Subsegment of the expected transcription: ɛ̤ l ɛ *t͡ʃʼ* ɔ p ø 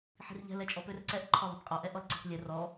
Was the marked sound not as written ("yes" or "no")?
no